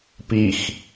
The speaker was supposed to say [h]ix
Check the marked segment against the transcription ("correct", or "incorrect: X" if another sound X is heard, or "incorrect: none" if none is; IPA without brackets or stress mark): incorrect: p